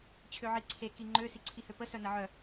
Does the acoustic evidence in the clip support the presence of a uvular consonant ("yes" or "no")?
no